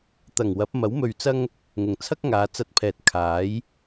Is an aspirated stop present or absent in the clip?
present